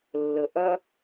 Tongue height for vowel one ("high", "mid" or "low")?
mid